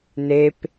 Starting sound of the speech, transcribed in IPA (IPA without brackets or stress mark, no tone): n